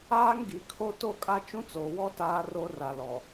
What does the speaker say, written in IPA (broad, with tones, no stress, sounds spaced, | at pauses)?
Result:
aː˦ ŋ ɡ i˨ kʰ o˦ t o˦˨ kʼ a˦ t͡ʃ ũ˦ t͡s oː˨ w ɔ˦ t aː˦ r o˦ r a˨ l ɔ˨